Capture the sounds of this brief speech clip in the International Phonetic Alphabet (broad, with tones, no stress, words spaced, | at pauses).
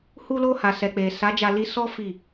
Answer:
hu˧lo˧ ha˨sɛ˨k͡pe˨ sa˨˦d͡ʒa˧li˧sɔ˦ fi˦˨